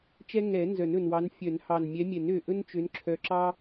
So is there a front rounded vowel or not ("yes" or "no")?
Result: yes